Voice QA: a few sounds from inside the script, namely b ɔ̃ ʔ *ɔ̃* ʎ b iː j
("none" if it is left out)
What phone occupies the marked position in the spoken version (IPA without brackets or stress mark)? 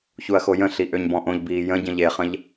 õ